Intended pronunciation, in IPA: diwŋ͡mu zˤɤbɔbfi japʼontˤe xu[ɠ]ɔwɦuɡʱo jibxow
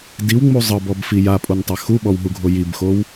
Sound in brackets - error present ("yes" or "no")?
yes